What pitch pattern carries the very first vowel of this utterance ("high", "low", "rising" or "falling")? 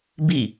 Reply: falling